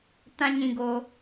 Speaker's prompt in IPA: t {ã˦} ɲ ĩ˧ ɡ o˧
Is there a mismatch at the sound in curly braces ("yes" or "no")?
no